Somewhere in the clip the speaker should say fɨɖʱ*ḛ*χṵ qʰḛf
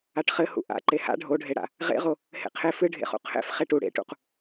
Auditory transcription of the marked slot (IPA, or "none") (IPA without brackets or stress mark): ḛ